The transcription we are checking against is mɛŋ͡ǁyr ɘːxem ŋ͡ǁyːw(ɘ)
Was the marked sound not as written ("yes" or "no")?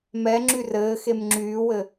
no